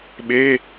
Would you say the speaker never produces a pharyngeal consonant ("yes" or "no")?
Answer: yes